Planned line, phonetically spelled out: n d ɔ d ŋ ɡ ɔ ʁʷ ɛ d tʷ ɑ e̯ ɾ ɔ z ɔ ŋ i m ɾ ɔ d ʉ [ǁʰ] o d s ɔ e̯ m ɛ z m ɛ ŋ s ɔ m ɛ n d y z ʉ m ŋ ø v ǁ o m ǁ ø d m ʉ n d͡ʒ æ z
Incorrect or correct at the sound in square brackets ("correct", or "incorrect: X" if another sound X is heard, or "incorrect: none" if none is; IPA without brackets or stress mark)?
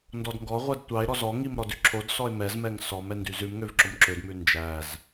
correct